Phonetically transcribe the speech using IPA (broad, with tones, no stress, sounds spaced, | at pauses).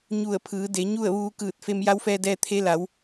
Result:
ɲ u˧˩ ə̯ pʰ ɯː˩˧ d e˩˧ ɲ u˥˨ ə̯ ʋ uː˧ k ɯː˧˩ t̚ f e˧ m j a˧˥ w f ɛː˧ d ɛː˧ t̪ʰ e˧˥ l a˩˧ w